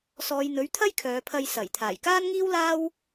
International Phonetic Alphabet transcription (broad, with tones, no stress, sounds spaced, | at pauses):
s ɔː˨˧ j n̪ ɵ˨˥ ɥ t̪ʰ ɐ˥ j kʰ œː˨˧ pʰ ɐ˧ j s ɐ˨˩ j t̪ʰ aː˨˩ j k aː˥ n ŋ iː˥ w l aː˥ w